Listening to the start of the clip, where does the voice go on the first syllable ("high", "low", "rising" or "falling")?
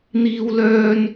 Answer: high